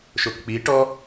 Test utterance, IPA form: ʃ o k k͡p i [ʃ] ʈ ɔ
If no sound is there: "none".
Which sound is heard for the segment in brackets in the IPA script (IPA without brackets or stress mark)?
none